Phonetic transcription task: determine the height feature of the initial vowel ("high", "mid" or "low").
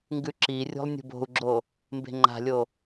high